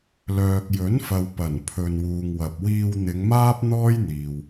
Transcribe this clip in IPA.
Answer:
l œː˨ k̚ j ɵ˨˥ n f ɐ˨ w p ɐ˨˩ n pʰ ɵ˨ n w uː˨ ŋ w ɐ˨ p̚ w iː˧ w n̪ ɪ˨˧ ŋ m aː˥ p̚ n̪ ɔː˥ j n̪ iː˨ w

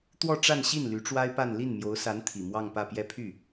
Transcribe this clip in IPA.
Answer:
t̪ w ɔ˥˧ ʈ͡ʂ a˥˧ n ɕ i˥˩ n l y˧˥ ʈ͡ʂ w a˥ ɪ̯ p a˥˧ n l i˥˩ n m j o˧˥ ʊ̯ s a˧˥ n t̪ʰ i˨˩ m w ɑ˥˧ ŋ p ä˥˧ p j ɛ˥˧ pʰ y˥˩

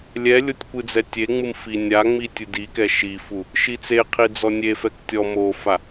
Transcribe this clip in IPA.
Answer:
lʲ ɛ lʲ o tʲ kʷ ɨ d͡z ɛ tʲ e ŋ͡m ɨ m f i nʲ a ŋ͡m i tʲ ɨ d i k ɛ ʃ i f u | ʃ i t͡s e qʰ i d͡z ɔ nʲ e f ɛ k tʲ ɔ m o f a

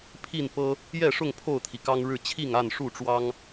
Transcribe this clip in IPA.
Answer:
pʰ i˥˨ n p ɤ˦ | j ɛ˥˨ ʂ ʊ˥˨ ŋ pʰ o˥˨ ʊ̯ t̪ʰ i˩ k ɑ˦ ŋ ɻ ɻ̩˥˨ t͡ɕʰ i˥˨ ŋ a˥˨ n ʂ u˥˨ ʈ͡ʂ w ɑ˦ ŋ

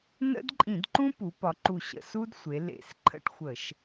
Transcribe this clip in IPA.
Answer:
n ə̰˦ d ǃʼ ĩ˧˩˧ d ǃ ũ˦ p u˩˧ p ɒ˩˧ ǃ u˨˩ ɕ ə̰˨˩ s u˦ d sʷ e˩˧ l ḛ˨˩ s ǃʰ ə̰˦ ʈ xʷ ə˧˩˧ ʃ

